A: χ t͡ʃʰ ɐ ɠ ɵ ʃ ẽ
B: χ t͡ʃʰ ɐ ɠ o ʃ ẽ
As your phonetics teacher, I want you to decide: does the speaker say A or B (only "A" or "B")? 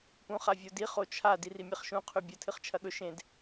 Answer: A